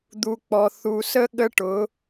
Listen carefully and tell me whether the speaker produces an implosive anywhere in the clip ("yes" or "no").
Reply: yes